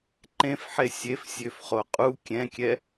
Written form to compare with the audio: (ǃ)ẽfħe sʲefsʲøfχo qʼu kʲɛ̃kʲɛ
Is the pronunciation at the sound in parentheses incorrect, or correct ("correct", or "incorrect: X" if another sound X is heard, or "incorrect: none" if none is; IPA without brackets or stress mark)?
correct